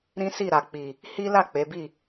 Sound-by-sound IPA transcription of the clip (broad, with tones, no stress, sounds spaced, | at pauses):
ɾ ĩ˦ s i˦˨ ɾ a˨ k͡p i˨ | h i˦ l a˦˨ k͡p e˨˦ b i˦˨